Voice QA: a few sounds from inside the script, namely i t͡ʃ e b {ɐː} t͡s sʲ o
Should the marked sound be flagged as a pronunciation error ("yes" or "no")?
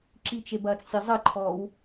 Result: no